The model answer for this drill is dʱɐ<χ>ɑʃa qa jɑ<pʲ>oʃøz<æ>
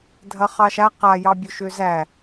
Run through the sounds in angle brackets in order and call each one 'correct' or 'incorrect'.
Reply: correct, incorrect, correct

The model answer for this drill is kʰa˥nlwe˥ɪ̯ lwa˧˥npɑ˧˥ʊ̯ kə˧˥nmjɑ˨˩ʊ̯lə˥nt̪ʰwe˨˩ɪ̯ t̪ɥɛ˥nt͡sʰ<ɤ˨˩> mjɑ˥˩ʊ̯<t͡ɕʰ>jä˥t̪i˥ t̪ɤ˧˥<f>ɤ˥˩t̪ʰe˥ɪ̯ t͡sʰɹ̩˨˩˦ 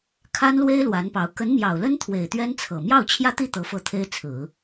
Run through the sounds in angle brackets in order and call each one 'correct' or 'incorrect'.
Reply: correct, correct, correct

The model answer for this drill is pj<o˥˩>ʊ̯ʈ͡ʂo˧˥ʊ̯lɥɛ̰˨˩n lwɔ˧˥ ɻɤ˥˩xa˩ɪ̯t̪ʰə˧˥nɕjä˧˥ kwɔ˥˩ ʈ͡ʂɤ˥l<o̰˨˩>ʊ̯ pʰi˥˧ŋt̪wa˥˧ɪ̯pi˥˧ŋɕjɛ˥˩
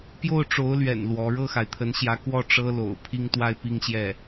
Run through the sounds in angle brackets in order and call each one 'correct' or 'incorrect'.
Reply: correct, correct

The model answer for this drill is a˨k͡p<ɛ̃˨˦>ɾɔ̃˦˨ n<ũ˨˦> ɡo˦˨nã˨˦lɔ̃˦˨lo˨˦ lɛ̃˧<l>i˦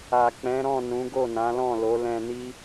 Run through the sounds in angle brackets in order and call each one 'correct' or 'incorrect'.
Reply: correct, correct, incorrect

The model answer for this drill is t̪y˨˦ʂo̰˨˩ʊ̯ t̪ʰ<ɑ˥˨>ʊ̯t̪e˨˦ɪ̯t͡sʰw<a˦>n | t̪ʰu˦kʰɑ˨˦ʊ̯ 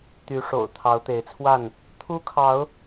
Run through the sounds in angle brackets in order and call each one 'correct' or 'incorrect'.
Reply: incorrect, incorrect

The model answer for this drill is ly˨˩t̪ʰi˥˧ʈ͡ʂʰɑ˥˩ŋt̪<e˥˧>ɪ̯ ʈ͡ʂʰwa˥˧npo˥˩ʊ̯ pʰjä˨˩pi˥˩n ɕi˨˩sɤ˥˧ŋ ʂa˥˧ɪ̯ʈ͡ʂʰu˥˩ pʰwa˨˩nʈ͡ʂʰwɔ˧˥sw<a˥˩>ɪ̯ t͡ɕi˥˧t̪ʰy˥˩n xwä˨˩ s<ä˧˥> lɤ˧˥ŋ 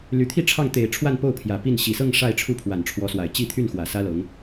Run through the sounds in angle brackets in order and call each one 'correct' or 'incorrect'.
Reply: incorrect, incorrect, incorrect

